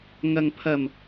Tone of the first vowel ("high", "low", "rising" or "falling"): low